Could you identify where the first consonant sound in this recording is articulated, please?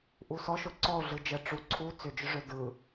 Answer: glottal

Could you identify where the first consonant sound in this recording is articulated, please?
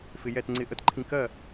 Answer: labial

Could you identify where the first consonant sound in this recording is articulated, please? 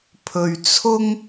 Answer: labial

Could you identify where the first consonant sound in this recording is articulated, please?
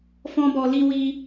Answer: labial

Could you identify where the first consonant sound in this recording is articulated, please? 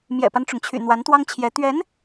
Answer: labial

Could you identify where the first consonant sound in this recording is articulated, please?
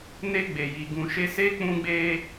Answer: alveolar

